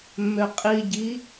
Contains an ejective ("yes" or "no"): yes